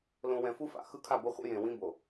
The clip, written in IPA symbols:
l õ˨ w ɛ̃˨ f u˦ f a̰˨ x ɯ˦ kʰ a˦˨ b o˦ χʷ ḭ˦ j ẽ˨ w ĩ˦ b o˨

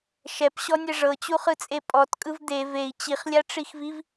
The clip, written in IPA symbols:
ʃ ɛ p ɕ ɔ nʲ ɛ ʐ ɤ t͡ɕ u χ ɯ t͡sʼ e pʼ ɔ t kʼ ɯ v d̪ e v e i̯ t͡ɕ i χ lʲ a ʈ͡ʂ i x v i v

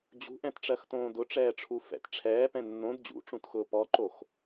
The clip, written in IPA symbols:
d͡ʑ ṳ ʔ ɛ̃ t ʈ͡ʂ ɜ x t õː d ʊ ʈ͡ʂ ɛː ʈ͡ʂʰ u f ɛ̰ t ʈ͡ʂʰ ɛː p ɛ̃ nː õ d d͡ʑ ṵ ʈ͡ʂ ũ t x ʊː p ɔ ǃ o x

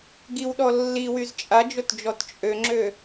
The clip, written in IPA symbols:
ɡ i w ɗ ɔ lː i w y z t͡ʃʼ a d͡ʒ o t d͡ʒ ɔ t t͡ʃʼ ø ŋ͡ǁ ø

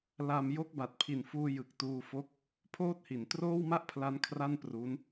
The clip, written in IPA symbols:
l a˧ m j o˦˥ k̚ b a˨˩ t̚ pʰ i˨˩ n f uː˧ j ɯ˨˩ k̚ t uː˧ f o˦˥ k̚ | pʰ oː˥˩ t̚ h i˩˦ n t r oː˥˩ w m a˥˩ ʔ pʰ l a˦˥ n kʰ r a˥˩ n p r u˦˥ n

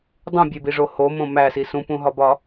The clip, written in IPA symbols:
dˤ ũ bʲ e b i ʐ o h o m õ m æ s i s ũ p ũ ɦ ɒ b ɒ

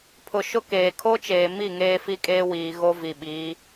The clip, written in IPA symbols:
pʰ ʊ˨ ʃ ʊ˦ k eː˨ kʰ o˦ t͡ʃ eː˨ m i˦˨ ŋ eː˦ f i˦ kʼ eː˦ w iː˨ ɣ o˦ v i˨ ɓ iː˨˦

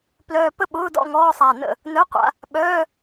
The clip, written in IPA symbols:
p l œː˧ p ə˥˨ ɓ ʊː˧˥˧ d ɔ̰˥˨ ŋ ɔː˧˥˧ sˤ a˧˩ n ə̰˥˨ | n œ˧˥˧ qʷ a̰˧ | ɓ œː˧˥˧

